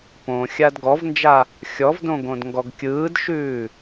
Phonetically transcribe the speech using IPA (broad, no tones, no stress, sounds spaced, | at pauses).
p õ xʲ a d ɡ ɔ v n d͡ʒ a | xʲ ɔ v d õ ɡ õ d ŋ ɡ ɔ ɡ kʲ ɯː d ʃ ʉː